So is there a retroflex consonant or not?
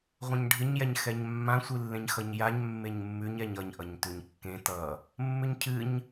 yes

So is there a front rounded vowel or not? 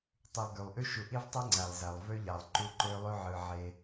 yes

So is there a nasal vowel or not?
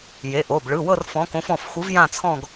yes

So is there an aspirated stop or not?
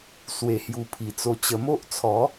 yes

